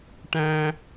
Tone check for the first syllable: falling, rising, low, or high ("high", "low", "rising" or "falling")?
high